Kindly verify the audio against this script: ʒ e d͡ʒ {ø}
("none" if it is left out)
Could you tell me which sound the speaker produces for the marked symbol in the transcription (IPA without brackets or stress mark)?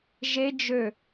ø